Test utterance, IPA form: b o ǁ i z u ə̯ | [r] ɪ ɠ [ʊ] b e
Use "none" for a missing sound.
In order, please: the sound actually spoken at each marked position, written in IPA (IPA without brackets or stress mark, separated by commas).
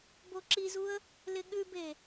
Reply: l, ʉ